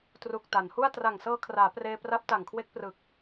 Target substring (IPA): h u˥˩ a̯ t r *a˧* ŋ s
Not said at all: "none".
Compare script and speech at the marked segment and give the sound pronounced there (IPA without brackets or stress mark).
a˨˩